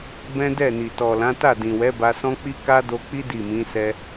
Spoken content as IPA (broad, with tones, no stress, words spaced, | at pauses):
bɛ̃˦dɛ˦˨ni˨ tɔ˨lã˨˦ ta˦˨dĩ˨wɛ˨˦ ba˧sɔ̃˦k͡pi˦ ka˦do˧k͡pi˦ di˦˨mĩ˨˦sɛ˧